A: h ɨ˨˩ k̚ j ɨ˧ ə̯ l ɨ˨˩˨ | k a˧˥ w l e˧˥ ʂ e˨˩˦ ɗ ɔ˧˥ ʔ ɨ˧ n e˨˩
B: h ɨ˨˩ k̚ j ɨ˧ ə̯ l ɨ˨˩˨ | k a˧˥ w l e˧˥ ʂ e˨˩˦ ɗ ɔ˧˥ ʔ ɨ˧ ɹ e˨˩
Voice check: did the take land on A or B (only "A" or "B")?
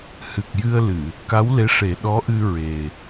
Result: B